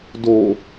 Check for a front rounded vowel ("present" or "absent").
absent